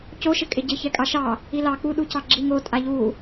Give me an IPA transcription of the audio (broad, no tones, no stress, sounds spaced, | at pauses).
c o ʃ ɪ kʼ ɪ ɟ ɪ ç ɛ kʼ ɑ ʃ ɑ | i l ɑ k͡p u ɗ u c ɑ ɡ͡ǁ i ŋ o tʼ a ʎ u